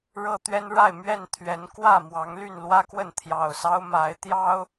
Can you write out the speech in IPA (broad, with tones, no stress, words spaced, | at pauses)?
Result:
ɻɤ˦t̪ɥɛ˦n ɻa˥˨ɪ̯mɥɛ˥˨n t̪ʰɥɛ˨˦n kwä˥˨mwɑ˨˦ŋ ly˥˨nlwä˦kwə˥˨n t̪ʰjɑ˨˩ʊ̯sɑ˦ʊ̯ ma˨˦ɪ̯t̪jɑ˦ʊ̯